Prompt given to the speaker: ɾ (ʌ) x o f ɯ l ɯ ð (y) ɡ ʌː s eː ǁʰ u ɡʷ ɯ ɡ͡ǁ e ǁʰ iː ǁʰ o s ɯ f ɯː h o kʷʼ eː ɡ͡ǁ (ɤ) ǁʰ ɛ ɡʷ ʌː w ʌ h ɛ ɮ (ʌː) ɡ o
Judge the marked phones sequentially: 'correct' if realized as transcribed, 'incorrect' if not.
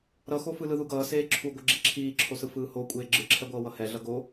correct, incorrect, incorrect, incorrect

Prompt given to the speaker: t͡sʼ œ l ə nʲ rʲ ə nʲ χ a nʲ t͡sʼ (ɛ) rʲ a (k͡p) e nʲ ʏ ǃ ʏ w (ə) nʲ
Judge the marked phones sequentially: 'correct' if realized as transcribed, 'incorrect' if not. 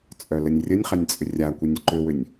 incorrect, incorrect, incorrect

